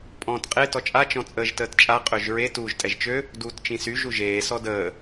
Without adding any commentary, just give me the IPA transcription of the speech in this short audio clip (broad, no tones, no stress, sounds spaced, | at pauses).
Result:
pʼ ɔ̃ː t qʼ e t ɔ t͡ʃʼ a t͡ʃ ɔ̃ t͡sʼ əː ʒ t əː t t͡ʃʼ a qʼ ø ʒ ɹ e t uː ʒ tʼ ɛ ʒ t͡ʃ ø | d uː t t͡ʃ ĩ s y ʒ u ʒ eː s ɔ d əː